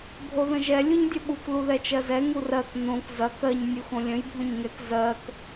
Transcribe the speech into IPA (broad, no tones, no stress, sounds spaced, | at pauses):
bʱ o ð ə̃ ʒ ɛ lʲ u ɲ dʲ ɐ ɓ u k l u ð ɛ t͡ʃ ɜ z ɛ ŋ u r ɜ k n õ k z ɐ k ɜ ɲ nʲ u x õ lʲ ə̃ j bʱ õ ɲ ŋ ɛ k z ɜ k